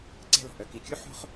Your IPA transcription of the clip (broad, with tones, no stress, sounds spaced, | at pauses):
ǀ ɛ̤˥˨ l ɔ̤˩ ʔ œ˩ k i˩˧˩ kʲ u˥ ħ o̤˥ χ